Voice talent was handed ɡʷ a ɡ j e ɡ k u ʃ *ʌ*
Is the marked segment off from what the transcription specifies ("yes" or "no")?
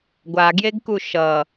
no